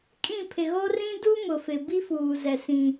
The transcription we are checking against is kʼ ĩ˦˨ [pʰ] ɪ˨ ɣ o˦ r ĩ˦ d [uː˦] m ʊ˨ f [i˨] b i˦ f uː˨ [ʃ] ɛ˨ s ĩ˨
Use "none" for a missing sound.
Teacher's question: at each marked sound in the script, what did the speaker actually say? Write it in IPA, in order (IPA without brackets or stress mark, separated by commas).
pʰ, u˦, ɪ˨, z